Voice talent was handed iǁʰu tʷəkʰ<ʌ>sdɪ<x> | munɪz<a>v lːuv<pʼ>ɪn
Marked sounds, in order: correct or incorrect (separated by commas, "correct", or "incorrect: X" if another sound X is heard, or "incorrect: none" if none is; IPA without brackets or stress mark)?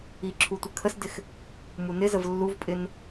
incorrect: ə, correct, incorrect: ə, correct